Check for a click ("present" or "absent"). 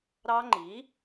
present